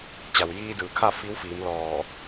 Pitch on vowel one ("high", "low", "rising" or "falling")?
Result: low